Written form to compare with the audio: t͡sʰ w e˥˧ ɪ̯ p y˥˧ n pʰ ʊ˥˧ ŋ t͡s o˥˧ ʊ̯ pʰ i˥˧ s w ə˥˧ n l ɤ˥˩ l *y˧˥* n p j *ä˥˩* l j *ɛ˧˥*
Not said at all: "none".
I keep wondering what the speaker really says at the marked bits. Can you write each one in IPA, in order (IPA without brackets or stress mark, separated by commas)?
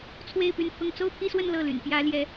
y̰˨˩, ä˧˥, ɛ˧˥